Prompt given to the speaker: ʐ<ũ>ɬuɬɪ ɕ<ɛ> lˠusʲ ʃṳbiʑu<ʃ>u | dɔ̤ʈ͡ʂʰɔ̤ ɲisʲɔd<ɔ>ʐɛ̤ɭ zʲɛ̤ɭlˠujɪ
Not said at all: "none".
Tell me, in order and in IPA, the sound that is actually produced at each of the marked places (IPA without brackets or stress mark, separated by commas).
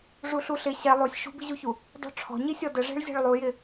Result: u, ɛ, ç, ə